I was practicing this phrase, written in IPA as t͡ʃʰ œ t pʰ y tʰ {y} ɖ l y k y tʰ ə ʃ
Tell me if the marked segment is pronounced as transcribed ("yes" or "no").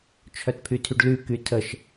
yes